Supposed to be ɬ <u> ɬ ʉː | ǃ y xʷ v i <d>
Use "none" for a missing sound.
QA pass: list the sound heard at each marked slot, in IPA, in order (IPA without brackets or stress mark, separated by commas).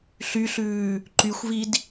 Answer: y, d